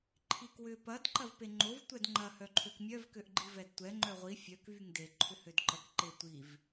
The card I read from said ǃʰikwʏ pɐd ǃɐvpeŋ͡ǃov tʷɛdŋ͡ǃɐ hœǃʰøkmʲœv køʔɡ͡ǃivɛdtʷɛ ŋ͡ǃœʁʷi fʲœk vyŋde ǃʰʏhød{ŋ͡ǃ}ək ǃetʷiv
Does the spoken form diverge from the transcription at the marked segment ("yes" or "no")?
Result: yes